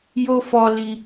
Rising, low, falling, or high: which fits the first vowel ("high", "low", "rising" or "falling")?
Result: high